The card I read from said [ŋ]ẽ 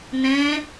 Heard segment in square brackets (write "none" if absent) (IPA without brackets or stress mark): n